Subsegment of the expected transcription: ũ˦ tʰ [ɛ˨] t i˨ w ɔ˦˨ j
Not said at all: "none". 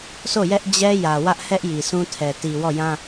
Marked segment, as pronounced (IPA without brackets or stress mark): ɛ˨